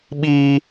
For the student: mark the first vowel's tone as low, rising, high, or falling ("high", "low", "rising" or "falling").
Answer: high